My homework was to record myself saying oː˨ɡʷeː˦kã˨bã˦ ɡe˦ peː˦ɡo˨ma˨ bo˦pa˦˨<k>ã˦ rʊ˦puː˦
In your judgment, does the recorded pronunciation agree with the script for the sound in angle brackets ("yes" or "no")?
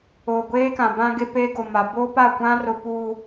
no